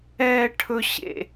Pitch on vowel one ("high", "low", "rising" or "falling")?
high